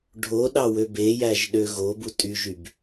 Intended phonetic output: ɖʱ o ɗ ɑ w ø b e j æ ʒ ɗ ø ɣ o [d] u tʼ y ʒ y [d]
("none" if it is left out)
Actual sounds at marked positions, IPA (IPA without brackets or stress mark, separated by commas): b, b